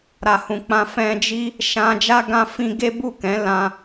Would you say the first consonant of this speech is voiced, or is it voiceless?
voiced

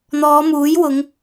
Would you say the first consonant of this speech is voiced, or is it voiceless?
voiced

